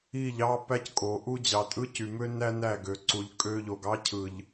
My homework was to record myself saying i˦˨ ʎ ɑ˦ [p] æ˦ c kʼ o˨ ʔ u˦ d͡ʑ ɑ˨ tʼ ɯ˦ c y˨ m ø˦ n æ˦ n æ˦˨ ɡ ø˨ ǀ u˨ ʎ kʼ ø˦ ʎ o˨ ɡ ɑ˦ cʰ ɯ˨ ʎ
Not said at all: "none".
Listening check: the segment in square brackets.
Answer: p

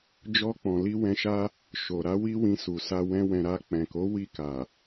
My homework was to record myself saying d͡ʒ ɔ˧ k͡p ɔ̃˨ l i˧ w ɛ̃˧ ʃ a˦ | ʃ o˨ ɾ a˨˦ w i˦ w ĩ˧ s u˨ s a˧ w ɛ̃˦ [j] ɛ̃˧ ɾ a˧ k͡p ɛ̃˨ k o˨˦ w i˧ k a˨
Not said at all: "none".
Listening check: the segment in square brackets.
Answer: w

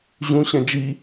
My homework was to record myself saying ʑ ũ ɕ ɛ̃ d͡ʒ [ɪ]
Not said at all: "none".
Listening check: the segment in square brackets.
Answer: i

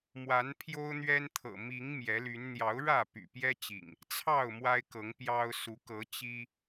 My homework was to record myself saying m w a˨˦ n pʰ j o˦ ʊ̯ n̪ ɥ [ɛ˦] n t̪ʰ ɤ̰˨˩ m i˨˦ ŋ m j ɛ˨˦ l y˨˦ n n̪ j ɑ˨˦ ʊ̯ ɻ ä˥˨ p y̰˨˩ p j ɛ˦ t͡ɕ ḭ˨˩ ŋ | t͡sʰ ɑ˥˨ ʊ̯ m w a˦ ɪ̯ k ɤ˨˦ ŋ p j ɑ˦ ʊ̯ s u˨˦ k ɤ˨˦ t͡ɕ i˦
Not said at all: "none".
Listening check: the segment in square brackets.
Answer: ɛ˦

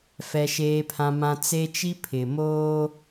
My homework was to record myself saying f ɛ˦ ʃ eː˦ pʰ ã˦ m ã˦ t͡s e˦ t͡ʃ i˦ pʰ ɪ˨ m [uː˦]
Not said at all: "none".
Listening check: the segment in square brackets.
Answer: oː˦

